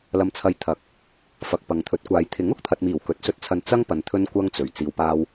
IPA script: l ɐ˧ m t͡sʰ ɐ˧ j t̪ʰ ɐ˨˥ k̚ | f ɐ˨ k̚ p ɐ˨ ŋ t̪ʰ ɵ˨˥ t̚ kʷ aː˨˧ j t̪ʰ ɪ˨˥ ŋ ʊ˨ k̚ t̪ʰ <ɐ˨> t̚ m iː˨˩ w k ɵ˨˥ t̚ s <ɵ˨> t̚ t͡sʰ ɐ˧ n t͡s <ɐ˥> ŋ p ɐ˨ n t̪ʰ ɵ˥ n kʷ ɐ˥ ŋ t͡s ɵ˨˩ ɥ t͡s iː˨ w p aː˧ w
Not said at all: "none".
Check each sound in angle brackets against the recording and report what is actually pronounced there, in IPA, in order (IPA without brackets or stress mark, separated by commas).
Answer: ɐ˨, ɵ˧, ɐ˥